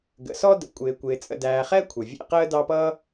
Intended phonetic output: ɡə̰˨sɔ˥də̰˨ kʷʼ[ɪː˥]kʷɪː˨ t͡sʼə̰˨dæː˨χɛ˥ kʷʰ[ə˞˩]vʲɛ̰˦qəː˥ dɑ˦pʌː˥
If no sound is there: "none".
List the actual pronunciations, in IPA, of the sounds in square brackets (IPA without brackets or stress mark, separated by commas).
ɪː˨, ə˩